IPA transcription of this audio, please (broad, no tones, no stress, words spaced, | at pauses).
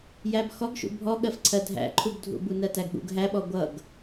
jæbxɔɡʃṵ bʱɔɠɜfǀʰɜ dʱæ̰ǃʰubdʱṵ bunɜtæɡɠṵɡ ɦæɓɔ ɡʷʌɡ